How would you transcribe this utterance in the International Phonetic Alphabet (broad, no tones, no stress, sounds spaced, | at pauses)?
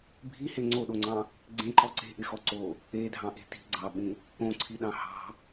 bʱ i h e ŋ͡ǀ o ɗ o ŋ͡ǀ ɑ̃ | ɡ͡ǀ ẽ ǃ ɔ ǀ e̤ ʔ ɪ x ɔ ǀ o | e dʱ ɑ̃ ʔ e̤ t i̤ ɡ͡ǀ ɑ ɓ ĩ | õ ǀʰ i ɗ ɑ̃ h ɑ̤